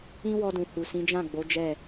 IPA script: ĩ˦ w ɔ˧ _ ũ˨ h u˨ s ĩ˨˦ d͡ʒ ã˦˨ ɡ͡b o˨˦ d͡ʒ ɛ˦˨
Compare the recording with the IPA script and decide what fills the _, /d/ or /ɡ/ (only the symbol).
d